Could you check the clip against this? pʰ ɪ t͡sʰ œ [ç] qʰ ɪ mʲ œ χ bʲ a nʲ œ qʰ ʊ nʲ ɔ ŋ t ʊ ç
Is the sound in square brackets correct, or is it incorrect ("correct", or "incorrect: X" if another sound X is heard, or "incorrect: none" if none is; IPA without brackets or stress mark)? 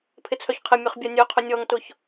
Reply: correct